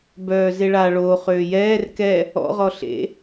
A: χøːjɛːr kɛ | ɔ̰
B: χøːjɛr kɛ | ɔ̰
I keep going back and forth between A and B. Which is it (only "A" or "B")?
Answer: A